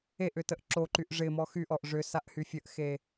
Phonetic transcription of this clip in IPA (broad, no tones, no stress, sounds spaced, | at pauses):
e ʔ ʏ t ə ʔ ǁ o ǃ y ʔ ʐ ɪ m ɔ x y ʔ ɔ ʔ ʐ ʏ s a ʔ h y fʲ ə ʔ x e